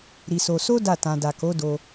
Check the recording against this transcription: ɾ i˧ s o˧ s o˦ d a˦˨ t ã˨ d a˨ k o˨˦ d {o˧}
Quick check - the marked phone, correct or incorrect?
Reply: correct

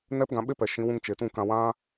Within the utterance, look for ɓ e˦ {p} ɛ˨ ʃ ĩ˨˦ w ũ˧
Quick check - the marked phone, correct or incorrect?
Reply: correct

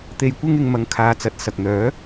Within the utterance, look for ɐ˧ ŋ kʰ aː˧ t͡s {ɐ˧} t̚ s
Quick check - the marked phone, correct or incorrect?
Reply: incorrect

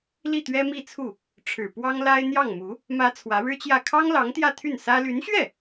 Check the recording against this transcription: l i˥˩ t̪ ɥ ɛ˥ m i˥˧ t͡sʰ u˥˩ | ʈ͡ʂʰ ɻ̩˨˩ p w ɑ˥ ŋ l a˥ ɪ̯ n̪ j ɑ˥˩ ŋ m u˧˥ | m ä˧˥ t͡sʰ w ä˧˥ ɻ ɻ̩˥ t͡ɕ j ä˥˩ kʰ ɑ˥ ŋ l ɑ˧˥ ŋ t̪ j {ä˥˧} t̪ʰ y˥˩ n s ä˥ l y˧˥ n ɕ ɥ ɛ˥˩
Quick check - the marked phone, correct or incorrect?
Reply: correct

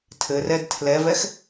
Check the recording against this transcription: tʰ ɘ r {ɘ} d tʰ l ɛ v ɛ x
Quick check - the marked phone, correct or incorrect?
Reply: incorrect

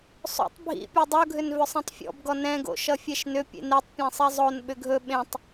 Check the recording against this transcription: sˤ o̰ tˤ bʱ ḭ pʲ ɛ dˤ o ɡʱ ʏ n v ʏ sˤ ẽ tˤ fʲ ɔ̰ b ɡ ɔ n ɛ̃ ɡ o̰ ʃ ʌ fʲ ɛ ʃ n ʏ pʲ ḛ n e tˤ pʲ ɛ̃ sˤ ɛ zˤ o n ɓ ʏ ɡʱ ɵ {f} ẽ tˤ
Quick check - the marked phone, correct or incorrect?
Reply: incorrect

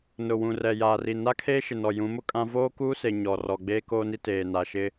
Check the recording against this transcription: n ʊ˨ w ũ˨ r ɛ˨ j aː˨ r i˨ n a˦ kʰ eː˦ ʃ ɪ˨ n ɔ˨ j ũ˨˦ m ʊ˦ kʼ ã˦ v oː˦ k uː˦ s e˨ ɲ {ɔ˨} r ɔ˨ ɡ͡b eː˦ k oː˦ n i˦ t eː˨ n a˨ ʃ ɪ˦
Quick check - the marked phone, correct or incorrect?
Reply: correct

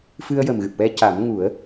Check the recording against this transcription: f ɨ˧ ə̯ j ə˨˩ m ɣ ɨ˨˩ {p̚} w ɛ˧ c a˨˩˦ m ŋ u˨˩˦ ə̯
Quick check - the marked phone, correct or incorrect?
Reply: correct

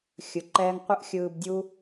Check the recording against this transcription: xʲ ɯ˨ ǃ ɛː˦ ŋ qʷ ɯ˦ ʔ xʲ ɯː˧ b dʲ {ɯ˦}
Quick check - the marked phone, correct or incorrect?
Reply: incorrect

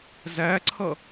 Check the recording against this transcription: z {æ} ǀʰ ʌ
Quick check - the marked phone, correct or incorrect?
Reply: correct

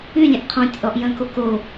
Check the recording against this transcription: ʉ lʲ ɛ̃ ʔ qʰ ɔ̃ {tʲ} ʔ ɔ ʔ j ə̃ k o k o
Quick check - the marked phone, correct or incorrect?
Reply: correct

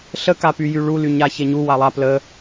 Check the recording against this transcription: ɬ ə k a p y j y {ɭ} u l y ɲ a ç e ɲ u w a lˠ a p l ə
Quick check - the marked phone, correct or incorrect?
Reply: correct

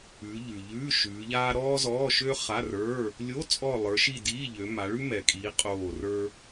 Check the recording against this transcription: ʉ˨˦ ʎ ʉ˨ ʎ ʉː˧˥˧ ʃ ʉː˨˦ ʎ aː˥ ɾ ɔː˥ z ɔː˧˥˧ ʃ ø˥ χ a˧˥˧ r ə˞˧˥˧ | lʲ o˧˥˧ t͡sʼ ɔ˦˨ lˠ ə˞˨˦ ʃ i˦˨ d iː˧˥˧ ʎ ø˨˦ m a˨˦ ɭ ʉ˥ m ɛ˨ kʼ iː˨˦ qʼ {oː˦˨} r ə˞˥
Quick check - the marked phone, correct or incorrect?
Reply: correct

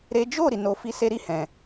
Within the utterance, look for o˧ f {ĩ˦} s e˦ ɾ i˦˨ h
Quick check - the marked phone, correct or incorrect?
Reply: incorrect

